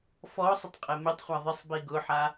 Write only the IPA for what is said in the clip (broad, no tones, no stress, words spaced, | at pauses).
fɔ sˤʊtˤqʼɛmɪtˤχʷa ðˤɪsˤbi ɡʊħa